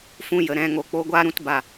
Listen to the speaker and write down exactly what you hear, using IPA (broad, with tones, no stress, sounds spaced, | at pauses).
f ũ˧ j ə˨ ɾ ɛ̃˧ ŋ o˨ k͡p o˧ ɡʷ aː˦ ɾ ũ˧ t b a˨